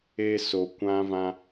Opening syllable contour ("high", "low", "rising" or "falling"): high